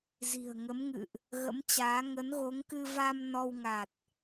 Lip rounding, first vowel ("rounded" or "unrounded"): unrounded